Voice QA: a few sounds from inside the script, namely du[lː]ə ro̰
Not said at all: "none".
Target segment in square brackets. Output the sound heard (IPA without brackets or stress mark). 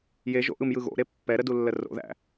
lː